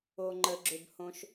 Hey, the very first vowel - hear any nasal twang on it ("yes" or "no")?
no